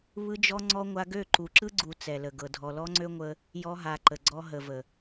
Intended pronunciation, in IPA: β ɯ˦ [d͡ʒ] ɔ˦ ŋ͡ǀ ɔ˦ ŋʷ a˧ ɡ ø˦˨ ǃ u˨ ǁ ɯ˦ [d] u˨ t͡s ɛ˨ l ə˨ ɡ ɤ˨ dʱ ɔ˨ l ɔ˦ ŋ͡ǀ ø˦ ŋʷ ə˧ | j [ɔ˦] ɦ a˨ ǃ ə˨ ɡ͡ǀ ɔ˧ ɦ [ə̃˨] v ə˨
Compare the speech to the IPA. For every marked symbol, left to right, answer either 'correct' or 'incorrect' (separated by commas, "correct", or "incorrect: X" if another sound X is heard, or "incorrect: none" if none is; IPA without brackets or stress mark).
correct, incorrect: ɡ͡ǀ, incorrect: ɔ˧, incorrect: ə˨